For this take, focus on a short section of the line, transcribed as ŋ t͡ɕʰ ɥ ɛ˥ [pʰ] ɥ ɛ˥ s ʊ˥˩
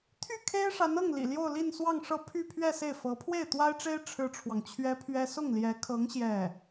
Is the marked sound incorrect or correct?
correct